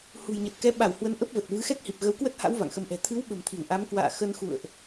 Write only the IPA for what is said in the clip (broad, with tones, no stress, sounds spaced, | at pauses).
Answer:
h ṳ˨˩ j ɲ ə˨˩ t̚ k ɛ˨˦ ɓ a˧˩ w h w ə˨˦ n ʔ ə˦˥ p̚ v ə˨˩ t̚ v ɨ˨˦ x ɛ˦˥ k̚ h i˨˩ p̚ ɣ ə˨˦ w k w ə˦˥ t̚ h a̰˧˥ w v a̰˧˨ ŋ x ə˨˦ m ʔ ɛ̤˨˩ t̪ʰ ɨ˨˦ w ɓ ə̤˨˩ m t̪ʰ i˧˩ w ʔ a˨˦ m k w a̰ː˧˨ x ə˧ n x ṵ˧˨ ə̯ ʔ